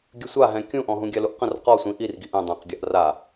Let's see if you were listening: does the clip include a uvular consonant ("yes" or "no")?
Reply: yes